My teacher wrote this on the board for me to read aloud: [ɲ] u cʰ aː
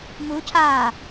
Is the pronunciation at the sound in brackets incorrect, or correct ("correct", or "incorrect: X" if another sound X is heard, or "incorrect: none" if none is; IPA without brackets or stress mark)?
incorrect: m